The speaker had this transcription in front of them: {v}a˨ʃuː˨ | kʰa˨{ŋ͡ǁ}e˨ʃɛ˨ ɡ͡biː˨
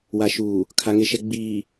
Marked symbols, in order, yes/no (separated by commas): no, no